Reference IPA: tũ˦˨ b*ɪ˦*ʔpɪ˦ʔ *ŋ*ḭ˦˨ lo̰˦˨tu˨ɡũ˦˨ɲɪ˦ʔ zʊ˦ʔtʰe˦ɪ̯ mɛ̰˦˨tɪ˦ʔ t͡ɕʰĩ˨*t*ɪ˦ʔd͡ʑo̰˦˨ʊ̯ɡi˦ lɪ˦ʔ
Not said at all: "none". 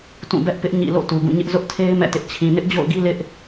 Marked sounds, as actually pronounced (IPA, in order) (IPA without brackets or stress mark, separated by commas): ɛ˦, ɲ, n